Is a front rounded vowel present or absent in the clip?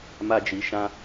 absent